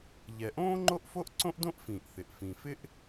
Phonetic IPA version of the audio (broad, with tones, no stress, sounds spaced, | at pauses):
ʎ ɛ˩ ʔ õː˥ ŋ͡ǃ o˥ ʔ f o˥ ʔ ǀ õ˥ ʔ d õ˥ ʔ f ĩː˩ ʔ θ ɪ˩ ʔ f ĩ˩ f ɪ˥ ʔ